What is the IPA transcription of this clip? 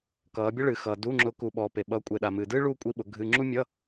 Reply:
k ʌː˨˦ bʲ ʌ˥ ɭ ɨː˨ x ʌː˨ d u˧˥˧ ŋ͡ǁ ʊ˨˦ k u˨ ɓ ɔː˨ p e˨ ɓ ʌː˨˦ kʷʼ e˨ ɗ a˨ m ɨː˨ d ɨː˥ ɭ uː˥ kʷʼ i˧˥˧ ɓ ʊ˨˦ ɡʱ ɨ˧˥˧ ŋ͡ǁ u˥ mʲ ʌ˧˥˧

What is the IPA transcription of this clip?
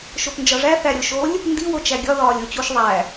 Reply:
ʃ o p n d͡ʒ ɒ ʐ æ θ æ ɾʲ o ʃ o lʲ | n d i w o t͡ʃ æ ɡʲ ɒ ð ɒː lʲ o t͡ɕ u ʃ ðˤ æ

